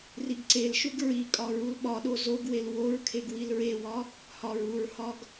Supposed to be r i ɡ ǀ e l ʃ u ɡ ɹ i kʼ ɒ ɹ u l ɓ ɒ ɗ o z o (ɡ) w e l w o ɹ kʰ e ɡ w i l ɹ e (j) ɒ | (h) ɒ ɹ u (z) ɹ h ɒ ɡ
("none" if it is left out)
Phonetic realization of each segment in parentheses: ɡ, w, h, none

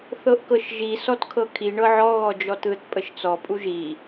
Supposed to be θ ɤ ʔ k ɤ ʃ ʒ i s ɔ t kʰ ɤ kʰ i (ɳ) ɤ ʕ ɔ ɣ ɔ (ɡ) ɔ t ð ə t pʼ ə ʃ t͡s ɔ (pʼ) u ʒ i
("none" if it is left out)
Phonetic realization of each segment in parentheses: ɳ, d͡ʒ, pʼ

